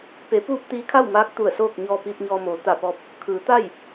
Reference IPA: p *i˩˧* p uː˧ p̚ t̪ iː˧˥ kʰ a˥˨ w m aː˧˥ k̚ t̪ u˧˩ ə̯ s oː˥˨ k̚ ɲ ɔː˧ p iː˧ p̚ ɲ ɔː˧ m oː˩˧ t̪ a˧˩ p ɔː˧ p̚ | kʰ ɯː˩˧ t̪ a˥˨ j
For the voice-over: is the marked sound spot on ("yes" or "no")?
no